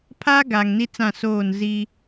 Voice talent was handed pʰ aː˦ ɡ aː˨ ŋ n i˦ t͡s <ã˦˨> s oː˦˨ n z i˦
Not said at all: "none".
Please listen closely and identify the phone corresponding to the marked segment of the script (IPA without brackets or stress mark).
ã˦˨